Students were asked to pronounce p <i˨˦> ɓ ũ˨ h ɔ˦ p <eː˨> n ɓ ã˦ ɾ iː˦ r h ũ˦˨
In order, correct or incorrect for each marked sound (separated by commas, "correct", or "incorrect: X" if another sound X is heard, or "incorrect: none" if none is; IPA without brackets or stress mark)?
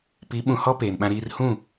correct, correct